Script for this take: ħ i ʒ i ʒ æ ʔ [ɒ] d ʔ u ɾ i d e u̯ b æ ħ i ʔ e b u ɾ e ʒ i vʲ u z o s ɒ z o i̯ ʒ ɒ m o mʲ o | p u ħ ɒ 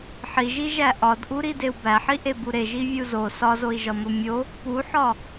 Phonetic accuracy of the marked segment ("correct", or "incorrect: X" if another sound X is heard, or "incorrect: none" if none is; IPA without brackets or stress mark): correct